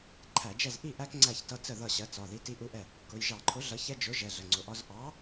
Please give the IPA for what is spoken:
ǃʰ æ˧˩˧ d͡ʒ ɛ˥˩ z ʔ i˥˩ ʔ æ˦ k ŋ͡ǀ æ˥˩ ç t ʌ˦ t͡s ə˥˩ ð ʌ˥˩ ɕ ɜ˨˥ t͡s ɒ˩˧˩ ð i˦ t i˦ ʔ u˦ ʔ ɛ˥˩ | k ʊ˩˧˩ j ʒ ɑ˧˩˧ ǃʰ ʊ˨˥ ɮ ʌ˨˥ ç ɛ˦ d͡ʒ ʊ˨˥ ʒ ɛ˩˧˩ ɮ ə˩˧˩ ŋ͡ǀ ʊ˩˧˩ ʔ ɒ˦ z ʔ ɑ˨˥

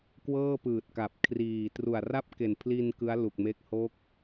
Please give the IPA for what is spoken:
k w ɤː˥˩ p ɯː˨˩ t̚ k a˨˩ p̚ kʰ r iː˨˩ t r u˨˩ a̯ r a˥˩ p̚ k e˨˩ n pʰ l i˧ n k ɯ˦˥ a̯ l u˨˩ k̚ m e˦˥ k̚ h o˦˥ k̚

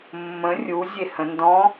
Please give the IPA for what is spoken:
mː ə̃ rʲ u zʲ e h ə̃ n d ɔ̃

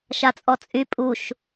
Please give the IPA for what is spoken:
ʃ a t͡sʼ ɔ t͡sʼ y pʼ u ʃ

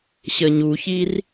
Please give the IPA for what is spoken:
ɕ ə ɲ u ç i r

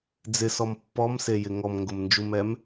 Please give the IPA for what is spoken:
d͡z ɪ s ɔ m pː ɔ m s e j ɪ ŋ ɔ m ŋ ɡ ʊ m n d͡ʒ u m ɛ m

